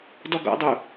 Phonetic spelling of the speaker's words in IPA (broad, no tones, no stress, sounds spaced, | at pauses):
d ɔ ɡ ɔ̰ dˤ u